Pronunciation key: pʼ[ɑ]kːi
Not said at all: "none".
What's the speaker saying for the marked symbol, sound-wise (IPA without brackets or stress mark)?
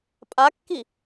a